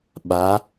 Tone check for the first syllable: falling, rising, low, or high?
rising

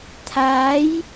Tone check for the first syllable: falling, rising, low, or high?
rising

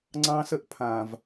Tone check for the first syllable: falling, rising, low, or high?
high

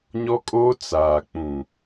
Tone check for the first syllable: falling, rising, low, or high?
high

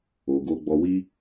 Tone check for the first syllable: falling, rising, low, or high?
low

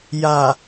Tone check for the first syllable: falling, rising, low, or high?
low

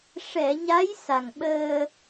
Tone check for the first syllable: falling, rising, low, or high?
low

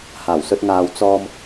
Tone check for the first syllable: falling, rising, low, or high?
low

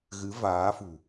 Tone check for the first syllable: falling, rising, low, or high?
rising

